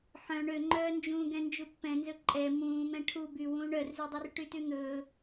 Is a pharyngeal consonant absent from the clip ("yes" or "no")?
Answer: no